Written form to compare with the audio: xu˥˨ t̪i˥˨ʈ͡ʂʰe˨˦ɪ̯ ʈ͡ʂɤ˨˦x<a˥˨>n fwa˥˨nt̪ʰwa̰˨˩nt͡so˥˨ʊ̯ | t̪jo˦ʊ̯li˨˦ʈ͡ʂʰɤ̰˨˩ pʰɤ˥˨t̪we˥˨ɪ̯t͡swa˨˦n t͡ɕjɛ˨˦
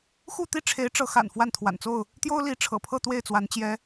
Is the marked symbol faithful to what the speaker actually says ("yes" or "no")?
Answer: no